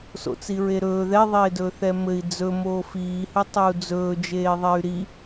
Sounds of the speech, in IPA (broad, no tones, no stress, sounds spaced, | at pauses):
s o̰ t͡s i ɹ e ɾ ɵː ð ɛ ðˤ eː d ɵː θ ɛ m ɘ i̯ d͡z ɵ m oː f iː h ɘ tˤ ø u̯ d͡z ɵː d͡ʒ eː ðˤ ɛ y̯ ɾ i